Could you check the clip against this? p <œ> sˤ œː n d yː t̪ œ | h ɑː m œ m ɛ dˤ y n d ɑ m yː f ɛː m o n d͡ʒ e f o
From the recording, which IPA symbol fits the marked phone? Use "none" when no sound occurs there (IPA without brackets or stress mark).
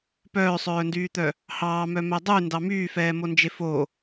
œː